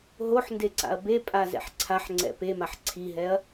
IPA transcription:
ɦoħ ndeǀa̰ɐ̯bepʼa zɛ̰ħǀʰaħŋ͡ǀɛ̰ pemaħ ǀʰiɦɛɐ̯

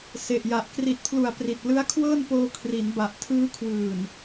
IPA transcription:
se˨˩ʔja˨˩ʔ kri˨˩t̚pʰlu˨˩a̯ pri˨˩t̚ lɯ˦˥a̯kʰwɤː˥˩npoː˧ kʰri˩˦nba˨˩ʔ tʰɯː˦˥kʰwɯː˨˩n

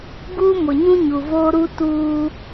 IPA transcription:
ɡuː˦mʊ˨ɲũ˦ ɲu˨voː˦ɾu˦ tuː˦

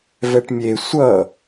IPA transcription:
vɛʈmʲe sʷʌ

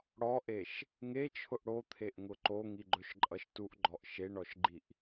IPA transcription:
ɽɔʔeʃ | ŋet͡ʃʰʊʔ ɽot̪ʰeʔŋʊ ǃoŋiɡ͡ǃɵʃǃʼʌʃ tuʔɡ͡ǃɔʔ ʃeɳɔʃɡ͡ǃiʔ

